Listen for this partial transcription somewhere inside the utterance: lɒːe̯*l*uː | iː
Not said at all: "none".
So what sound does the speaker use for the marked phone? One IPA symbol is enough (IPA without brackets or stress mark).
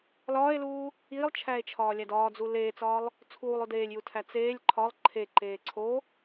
l